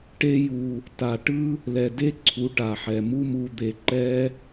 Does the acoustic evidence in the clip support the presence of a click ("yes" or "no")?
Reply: yes